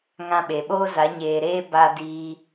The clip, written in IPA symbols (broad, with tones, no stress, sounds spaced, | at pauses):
ŋ ã˧ ɓ e˨ ɓ oː˦ z a˨˦ ɲ eː˨ ɾ eː˦ b a˧ d iː˧